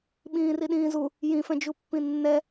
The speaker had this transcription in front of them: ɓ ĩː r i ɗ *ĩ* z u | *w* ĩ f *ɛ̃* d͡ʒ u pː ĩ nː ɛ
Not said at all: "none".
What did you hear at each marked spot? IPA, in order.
ĩː, j, ɛ̃

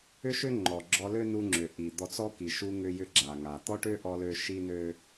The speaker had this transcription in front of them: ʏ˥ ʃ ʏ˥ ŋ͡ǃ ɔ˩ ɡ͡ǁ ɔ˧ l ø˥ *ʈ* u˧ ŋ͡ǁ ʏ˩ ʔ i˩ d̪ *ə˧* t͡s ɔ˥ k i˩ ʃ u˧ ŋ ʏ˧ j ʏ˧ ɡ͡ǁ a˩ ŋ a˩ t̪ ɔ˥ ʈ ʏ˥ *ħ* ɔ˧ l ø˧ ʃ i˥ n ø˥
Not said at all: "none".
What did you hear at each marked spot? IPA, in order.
n, ɔ˧, ʔ

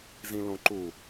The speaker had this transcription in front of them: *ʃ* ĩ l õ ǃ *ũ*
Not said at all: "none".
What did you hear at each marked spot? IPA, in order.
z, u

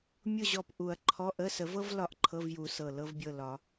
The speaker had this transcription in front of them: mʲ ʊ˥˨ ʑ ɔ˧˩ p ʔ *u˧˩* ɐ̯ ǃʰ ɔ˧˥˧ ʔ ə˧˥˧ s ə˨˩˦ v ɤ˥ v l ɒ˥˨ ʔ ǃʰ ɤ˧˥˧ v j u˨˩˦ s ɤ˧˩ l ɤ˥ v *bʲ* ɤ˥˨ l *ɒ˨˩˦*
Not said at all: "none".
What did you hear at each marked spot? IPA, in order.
u˨˩˦, bʲ, ɒ˨˩˦

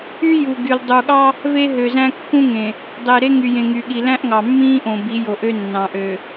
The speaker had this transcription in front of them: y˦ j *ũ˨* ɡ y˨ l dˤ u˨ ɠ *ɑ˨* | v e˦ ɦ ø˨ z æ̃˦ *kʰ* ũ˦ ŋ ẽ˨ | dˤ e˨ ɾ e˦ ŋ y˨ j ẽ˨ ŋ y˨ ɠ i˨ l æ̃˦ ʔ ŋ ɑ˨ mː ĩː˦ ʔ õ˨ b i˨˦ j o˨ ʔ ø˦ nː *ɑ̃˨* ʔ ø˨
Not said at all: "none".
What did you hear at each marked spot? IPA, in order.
u˨, ɑ˦, kː, ɑ̃˨

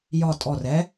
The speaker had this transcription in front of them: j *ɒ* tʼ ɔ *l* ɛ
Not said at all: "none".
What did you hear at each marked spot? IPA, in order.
ɒ, r

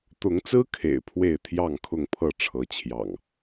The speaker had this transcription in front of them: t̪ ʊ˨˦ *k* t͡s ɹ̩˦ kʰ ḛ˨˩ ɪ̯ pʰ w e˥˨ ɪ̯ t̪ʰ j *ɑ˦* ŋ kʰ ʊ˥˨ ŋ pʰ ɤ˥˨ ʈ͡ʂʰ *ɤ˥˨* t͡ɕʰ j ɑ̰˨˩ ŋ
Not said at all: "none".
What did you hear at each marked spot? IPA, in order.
ŋ, ɑ˥˨, ɤ˨˦

